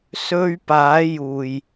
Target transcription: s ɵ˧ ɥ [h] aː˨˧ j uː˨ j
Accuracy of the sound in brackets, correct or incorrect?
incorrect